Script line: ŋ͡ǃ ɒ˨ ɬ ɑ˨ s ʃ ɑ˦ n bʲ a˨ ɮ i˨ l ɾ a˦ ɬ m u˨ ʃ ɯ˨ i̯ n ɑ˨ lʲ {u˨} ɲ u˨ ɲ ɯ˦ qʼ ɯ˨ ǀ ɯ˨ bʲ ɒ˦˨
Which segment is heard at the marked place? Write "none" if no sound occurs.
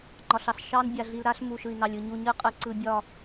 ɯ˨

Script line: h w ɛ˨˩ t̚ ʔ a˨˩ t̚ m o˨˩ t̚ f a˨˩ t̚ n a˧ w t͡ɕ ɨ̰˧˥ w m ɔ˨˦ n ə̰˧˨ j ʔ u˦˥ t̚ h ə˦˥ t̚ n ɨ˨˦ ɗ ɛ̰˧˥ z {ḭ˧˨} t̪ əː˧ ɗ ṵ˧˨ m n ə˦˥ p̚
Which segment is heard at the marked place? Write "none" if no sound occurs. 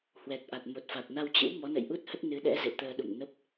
ḛ˧˨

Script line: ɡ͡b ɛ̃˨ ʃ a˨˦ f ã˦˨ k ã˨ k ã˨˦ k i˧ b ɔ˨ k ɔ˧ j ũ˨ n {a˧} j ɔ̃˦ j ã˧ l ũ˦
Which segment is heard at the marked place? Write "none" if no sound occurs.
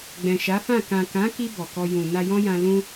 a˧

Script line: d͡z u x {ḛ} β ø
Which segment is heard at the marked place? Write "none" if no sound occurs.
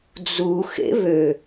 ḛ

